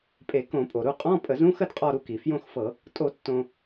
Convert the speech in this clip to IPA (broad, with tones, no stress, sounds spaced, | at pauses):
pʼ e˧˩˧ k õ˧˩˧ pʼ o˩ ɾ u˥˨ qʼ ɔ̃˧˥˧ pʼ ə˧˩˧ z ũ˧˥˧ x ə˥˨ d qʼ ɔ˥˨ ɾ u˥˨ k i˩ f j õ˥˨ x f ɤ˧˩˧ | tʼ o˧˩˧ tː õ˩